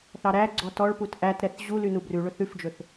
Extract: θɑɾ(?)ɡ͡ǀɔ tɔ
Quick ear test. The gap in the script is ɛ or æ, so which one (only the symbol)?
æ